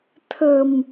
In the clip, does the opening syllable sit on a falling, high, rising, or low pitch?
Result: low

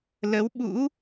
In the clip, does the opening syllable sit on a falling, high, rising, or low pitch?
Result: rising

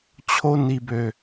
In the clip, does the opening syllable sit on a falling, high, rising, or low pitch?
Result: high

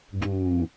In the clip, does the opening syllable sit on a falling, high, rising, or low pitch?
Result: low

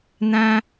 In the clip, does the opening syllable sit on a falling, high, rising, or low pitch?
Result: high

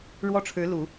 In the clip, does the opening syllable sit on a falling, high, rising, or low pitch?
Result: high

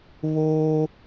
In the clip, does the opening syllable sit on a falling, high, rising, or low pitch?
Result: high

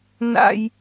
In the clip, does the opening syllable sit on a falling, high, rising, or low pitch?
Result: high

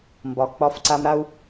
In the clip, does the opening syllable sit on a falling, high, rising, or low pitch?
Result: low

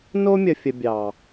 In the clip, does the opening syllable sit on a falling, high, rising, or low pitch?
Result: high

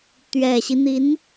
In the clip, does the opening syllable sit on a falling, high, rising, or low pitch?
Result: low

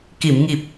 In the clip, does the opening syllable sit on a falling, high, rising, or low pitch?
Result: low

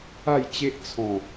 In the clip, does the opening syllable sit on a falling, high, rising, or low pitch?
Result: falling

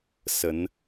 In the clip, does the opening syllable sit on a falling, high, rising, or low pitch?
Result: rising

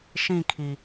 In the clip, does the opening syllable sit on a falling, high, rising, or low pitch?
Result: falling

